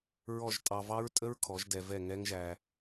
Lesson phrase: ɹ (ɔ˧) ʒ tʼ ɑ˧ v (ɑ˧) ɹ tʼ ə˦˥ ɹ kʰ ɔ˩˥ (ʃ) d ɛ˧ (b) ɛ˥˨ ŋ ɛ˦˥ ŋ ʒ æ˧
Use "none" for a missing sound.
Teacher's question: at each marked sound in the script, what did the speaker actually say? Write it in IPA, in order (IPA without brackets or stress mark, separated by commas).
ɔ˥˨, ɑ˦˥, ʒ, v